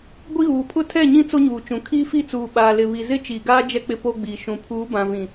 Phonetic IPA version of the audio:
ɡʷ i˦ ɣ uː˨ pʰ ʊ˦ tʰ ɛ˦˨ ɲ ĩ˦ t͡s o˦ ɲ uː˨ t͡ʃ ũ˨ kʰ iː˦ f i˦ t͡s uː˨ ɓ aː˨ l ɪ˨ β i˨ z ɪ˦ t͡ʃ iː˨ ɡ aː˦ d͡ʒ ɛ˦ k͡p ɪ˦ p o˦ ɡ͡b iː˨ ʃ ũ˨ pʰ uː˨˦ b ã˨ v ĩ˨

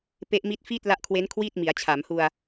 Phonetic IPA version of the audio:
p e˦˥ ʔ m i˦˥ t̚ f iː˥˩ t̚ l a˦˥ ʔ kʰ w e˦˥ n kʰ w iː˥˩ t̚ m i˩˦ a̯ t͡ɕʰ a˩˦ m h u˧ a̯

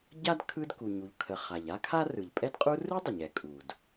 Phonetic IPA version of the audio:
ɟ a˥ d kʰ ɯ˥ d k u˩ ɲ u˩ ʎ kʰ ə˩ χ a˩ ʎ a˥ kʰ a˥ r ɯ˩ ʎ pʼ ɛ˥ d qʼ u˥ r ɯ˥ dˤ ə˩ ɲ ɛ˩ kʼ u˩ d

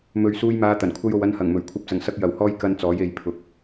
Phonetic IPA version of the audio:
m ɵ˨ ɥ s uː˧ j m aː˨˧ t̪ ɐ˨˩ n kʷʰ ɐ˥ j o˧ w ɐ˧ n h ɐ˨˩ ŋ m ɵ˨˩ ɥ kʷʰ ɐ˨˥ p̚ t͡s ɐ˨˩ ŋ s ɐ˧ k̚ j ɐ˨ w h ɔː˥ j k ɐ˧ n t͡s ɔː˨˥ j e˨˧ j pʰ ʊ˨ k̚

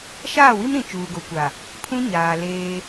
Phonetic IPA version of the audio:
ʃ aː˦˨ w i˦ m ɾ ĩ˨ t͡ʃ uː˨ ɡ o˨ kʷ a˨ | pʰ ũ˦ ɲ aː˨ l eː˦

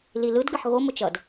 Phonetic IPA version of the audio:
l i l ɯ d ɡ ə ħ ɣ o m ʊ t͡ʃ ʌ d

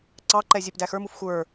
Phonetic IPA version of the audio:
ǀ ɑ ǃ ɛ zʲ ɛ p d æ x ə˞ m u f xʷ ə˞

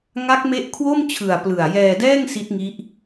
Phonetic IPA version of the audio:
ŋ a˦˥ k̚ m e˦˥ ʔ kʰ w o˥˩ m t͡ɕʰ ɯ˨˩ a̯ p l ɯ˨˩ a̯ j ɛː˧ d ɛː˥˩ ŋ s i˦˥ t̚ ŋ i˦˥ ʔ

